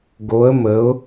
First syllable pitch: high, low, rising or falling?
rising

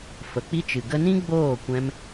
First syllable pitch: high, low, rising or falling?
low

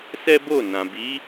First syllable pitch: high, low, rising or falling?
high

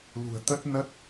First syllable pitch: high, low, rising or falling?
low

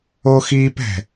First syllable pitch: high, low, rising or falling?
high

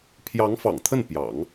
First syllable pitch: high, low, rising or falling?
rising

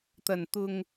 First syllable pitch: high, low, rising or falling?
low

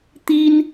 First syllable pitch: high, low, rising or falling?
high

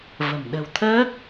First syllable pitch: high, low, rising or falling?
low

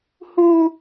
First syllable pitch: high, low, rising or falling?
high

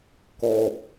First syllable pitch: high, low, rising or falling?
low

